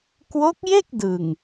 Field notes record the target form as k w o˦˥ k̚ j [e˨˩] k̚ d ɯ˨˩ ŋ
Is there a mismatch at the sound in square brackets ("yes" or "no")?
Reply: yes